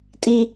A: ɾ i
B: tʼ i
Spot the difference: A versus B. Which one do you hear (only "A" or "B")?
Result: B